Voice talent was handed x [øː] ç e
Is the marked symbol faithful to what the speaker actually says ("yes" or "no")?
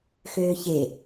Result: yes